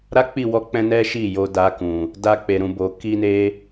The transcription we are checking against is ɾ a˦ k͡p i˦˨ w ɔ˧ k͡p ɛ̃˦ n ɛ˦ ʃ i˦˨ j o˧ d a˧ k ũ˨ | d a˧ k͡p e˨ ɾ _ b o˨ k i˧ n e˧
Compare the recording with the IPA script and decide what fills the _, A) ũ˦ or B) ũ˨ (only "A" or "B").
B